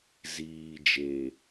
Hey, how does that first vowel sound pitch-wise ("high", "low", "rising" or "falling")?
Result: low